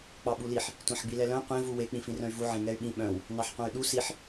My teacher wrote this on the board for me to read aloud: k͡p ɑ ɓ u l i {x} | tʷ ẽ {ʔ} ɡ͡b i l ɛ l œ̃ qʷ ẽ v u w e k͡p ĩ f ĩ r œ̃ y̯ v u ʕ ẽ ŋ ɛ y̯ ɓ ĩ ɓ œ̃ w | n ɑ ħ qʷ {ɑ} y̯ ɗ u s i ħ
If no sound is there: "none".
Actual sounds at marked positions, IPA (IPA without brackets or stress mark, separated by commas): ħ, ħ, ɑ̃